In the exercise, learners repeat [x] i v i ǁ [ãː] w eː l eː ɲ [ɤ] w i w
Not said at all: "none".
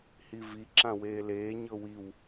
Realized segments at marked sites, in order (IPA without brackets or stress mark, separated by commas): h, ã, ɤ